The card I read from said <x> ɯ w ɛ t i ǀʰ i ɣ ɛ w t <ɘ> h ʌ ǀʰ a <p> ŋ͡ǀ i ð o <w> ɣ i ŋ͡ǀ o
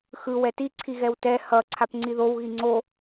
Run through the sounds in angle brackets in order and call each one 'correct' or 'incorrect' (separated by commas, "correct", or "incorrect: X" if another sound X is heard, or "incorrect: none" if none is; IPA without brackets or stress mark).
correct, incorrect: ɛ, correct, correct